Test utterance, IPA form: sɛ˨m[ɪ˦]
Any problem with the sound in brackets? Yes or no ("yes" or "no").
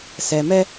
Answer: yes